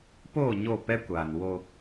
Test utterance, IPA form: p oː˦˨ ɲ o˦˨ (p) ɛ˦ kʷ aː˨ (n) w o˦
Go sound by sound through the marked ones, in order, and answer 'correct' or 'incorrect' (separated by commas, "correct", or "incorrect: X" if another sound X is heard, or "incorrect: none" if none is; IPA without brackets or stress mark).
correct, correct